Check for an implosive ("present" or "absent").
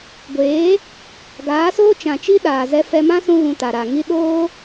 present